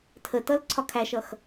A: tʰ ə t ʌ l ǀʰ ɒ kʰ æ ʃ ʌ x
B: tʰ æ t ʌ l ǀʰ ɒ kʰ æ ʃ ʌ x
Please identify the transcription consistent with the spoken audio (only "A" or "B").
A